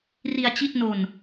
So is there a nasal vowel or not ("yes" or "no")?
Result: no